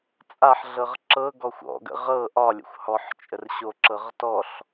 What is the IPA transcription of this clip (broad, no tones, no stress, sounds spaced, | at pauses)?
t͡sʼ a ħ ɮ ɤ ʁ ǁ ɤ ɡ ɔ xʷ ɔ̰ ɡ ə̰ ʁ ɤ ʔ ɒ lʲ ə̰ xʷ h ɔ ħ t͡ʃʼ ə r ɕ o ǁ ɤ ʁ t ɔ ɬ